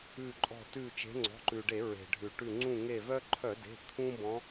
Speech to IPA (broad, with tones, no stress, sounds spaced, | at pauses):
ʉ˧˩ ǃʼ ɔ̤˧˩ t ʉ˧˩ t͡ʃ e̤˨˦ ŋ͡ǀ ɔ̤˩˧˩ ǃ ʉ˩ ɖ e˧˩˧ ɹ e̤˩ ɖʱ ʉ˩ ʈ ʉ˧˩ ŋ͡ǀ ũ˧˩ ŋ e˧˩ v œ˦ ǃʰ œ˧˩˧ d e̤˩˧˩ t̪ʰ ũ˦ b ɔ̃˨˦